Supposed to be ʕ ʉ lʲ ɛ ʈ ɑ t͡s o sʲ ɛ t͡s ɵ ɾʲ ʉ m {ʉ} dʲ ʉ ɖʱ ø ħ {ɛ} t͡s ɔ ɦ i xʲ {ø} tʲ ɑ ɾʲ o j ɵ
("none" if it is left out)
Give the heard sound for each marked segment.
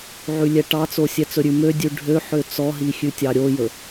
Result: ø, ø, ʉ

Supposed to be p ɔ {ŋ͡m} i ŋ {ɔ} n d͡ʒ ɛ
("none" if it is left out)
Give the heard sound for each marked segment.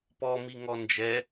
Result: m, ɔ

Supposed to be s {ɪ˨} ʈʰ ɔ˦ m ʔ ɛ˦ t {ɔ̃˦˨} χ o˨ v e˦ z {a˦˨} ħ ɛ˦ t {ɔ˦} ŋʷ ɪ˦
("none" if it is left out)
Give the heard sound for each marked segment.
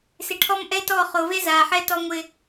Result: ɪ˨, ɔ˦˨, a˨, ɔ˦

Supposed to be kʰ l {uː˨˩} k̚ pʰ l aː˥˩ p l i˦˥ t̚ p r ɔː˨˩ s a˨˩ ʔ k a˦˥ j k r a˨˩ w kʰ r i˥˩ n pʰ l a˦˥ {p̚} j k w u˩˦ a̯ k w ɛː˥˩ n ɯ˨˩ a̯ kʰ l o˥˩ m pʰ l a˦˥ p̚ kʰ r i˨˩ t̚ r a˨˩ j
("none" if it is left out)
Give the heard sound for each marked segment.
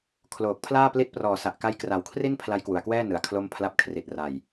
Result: oː˨˩, none

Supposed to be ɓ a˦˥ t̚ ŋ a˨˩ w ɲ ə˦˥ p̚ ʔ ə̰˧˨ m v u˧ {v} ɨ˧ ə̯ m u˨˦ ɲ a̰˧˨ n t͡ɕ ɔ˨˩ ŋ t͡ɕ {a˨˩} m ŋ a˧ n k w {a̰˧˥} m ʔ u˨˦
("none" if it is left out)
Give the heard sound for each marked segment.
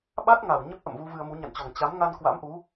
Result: v, a˨˦, a̰˧˥

